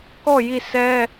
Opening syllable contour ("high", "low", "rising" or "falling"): falling